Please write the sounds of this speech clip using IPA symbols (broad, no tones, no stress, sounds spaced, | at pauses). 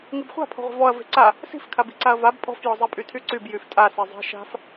ŋ i b χʷ a̤ pʰ ɔ̤ ʁʷ e̤ v ɔ ɐ̯ v e̤ ǀ a | s i̤ f kʰ a b i̤ ǀ a ɐ̯ v a b pʼ ɔ̤ f j ɔ zˤ e pʼ y tʰ y ǀ y b j y f tʼ a s e zˤ e̤ ʃ a̤ f